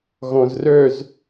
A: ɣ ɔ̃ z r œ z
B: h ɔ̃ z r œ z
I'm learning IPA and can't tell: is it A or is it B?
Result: A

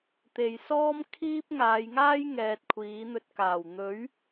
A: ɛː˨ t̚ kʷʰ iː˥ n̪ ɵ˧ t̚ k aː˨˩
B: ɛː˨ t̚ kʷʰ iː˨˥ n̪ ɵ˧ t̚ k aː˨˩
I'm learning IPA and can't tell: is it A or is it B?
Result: B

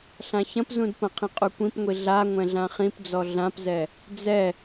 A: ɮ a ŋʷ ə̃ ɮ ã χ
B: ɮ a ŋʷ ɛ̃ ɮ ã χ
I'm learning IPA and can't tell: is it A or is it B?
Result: B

